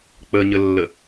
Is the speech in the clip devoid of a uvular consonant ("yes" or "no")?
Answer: yes